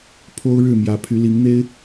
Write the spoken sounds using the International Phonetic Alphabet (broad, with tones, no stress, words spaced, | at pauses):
pʰo˥ʊ̯ɻɻ̩˥˩ mjä˧˥pʰy˧˥li˧˥ŋ n̪e˥ɪ̯